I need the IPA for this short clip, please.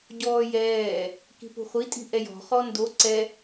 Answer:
ɟɔːjɛː | ki̤pṳχʷi tʼi̤ʔɛjɔ̤ χɔndo ǀɛ

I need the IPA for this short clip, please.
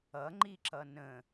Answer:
ʌŋ͡ǃiǁʌ nə̃

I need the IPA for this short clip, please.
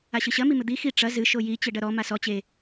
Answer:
aɕɨɕɐ mimɘd̪i xi ʈ͡ʂɐ zɨ ʃoji t͡ɕɘɖɐɾɔ masɔ t͡ɕe

